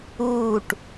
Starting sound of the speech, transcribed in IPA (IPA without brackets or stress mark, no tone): uː